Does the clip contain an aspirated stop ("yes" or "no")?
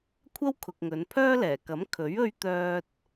yes